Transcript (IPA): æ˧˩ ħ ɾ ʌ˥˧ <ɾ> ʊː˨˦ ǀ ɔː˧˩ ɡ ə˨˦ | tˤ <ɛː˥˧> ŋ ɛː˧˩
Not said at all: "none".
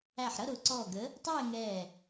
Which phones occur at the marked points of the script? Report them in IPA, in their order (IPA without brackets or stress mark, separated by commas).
ɾ, ɛː˥˧